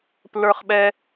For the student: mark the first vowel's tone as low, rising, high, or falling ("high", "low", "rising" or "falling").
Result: high